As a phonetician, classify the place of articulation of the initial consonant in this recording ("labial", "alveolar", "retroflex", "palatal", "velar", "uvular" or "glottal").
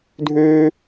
alveolar